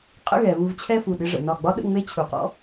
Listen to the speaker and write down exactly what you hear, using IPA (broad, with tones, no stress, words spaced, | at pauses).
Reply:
qʼə̰˥˧ɣɛ˩˧ βu˧v t͡ɕʰɛ˥˧fu˧˩ɗɪ˥˧ ʐə̰˩˧nɒ˧˩ɡ͡bɒ˥ ɗə̰˥˧ŋ͡me˥t͡ɕʰu˩˧qɔ̰˥